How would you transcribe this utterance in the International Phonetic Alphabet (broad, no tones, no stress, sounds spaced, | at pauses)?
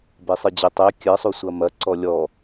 b e sˤ ɨ d͡ʑ ɘ tˤ e kʲ ɘ sˤ u sʷ ɐ m ɐ ǀ ɔ lʲ ɔ